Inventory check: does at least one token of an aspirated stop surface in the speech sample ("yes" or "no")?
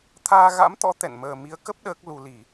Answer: yes